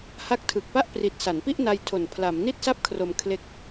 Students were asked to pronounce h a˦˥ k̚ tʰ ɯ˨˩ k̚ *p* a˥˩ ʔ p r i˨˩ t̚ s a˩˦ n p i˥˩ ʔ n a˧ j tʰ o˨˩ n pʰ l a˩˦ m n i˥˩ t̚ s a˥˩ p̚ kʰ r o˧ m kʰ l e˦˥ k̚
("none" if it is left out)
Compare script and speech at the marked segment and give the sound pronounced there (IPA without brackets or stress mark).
p